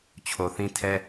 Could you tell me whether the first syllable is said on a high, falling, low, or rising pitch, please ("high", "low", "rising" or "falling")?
low